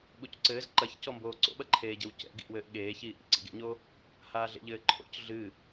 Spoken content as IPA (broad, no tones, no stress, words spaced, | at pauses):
ɓucǀɘːz ǃɐçcɔmboː ǀo̰ɓɐǃʰeːɟɘw cɛ̰ɡḭʔ wɘːʔɠeːçiː ʔḭǀḭɡḛɲo | haːɮḛʎɘːǃʰo̰c ɮɨ